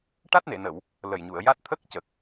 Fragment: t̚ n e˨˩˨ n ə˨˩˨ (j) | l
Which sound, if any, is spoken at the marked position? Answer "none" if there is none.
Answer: w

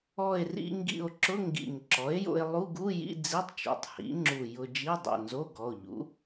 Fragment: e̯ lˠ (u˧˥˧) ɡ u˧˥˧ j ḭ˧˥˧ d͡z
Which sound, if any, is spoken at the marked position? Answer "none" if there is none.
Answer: u˧˥˧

